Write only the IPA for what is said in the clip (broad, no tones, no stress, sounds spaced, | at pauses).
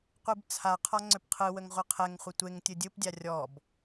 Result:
qʷ ɯ b t͡sʰ a qʰ ɔ ŋ͡ǀ ʏ p qʰ ɯ w ə ŋ ʁʷ ɯ qʰ ɛ ŋ χʷ ɯ tʷ e ŋ tʲ ɯ dʲ ɯ p dʲ a rʲ ɔ b